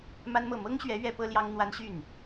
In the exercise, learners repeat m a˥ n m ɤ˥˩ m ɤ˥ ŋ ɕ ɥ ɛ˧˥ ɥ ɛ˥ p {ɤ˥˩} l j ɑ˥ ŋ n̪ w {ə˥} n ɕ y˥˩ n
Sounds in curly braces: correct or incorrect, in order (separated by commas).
incorrect, incorrect